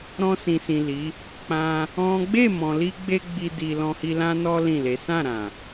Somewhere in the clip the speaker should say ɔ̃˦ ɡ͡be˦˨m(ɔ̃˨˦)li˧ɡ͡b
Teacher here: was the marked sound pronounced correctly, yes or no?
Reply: no